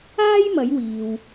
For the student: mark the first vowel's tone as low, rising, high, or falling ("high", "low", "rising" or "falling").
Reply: high